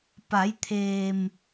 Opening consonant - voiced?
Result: no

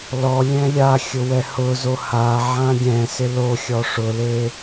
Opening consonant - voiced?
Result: yes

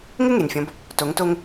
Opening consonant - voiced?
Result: yes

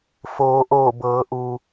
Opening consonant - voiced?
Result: no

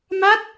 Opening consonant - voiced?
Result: yes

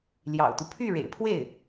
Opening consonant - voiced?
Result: yes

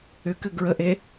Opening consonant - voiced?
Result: no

